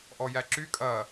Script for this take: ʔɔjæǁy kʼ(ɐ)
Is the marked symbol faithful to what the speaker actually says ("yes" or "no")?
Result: yes